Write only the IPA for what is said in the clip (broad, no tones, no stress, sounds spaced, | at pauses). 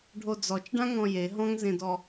ɖʱ o d͡z ɔ t͡ʃ ɖ ã ŋ ɔ̃ j e ɦ ɔ̃ ŋ z ẽ d ɔ